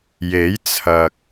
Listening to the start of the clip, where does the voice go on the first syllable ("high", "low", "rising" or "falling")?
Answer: rising